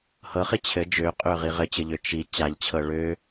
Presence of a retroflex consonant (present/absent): present